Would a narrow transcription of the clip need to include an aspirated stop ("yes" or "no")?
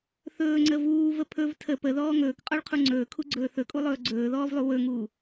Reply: yes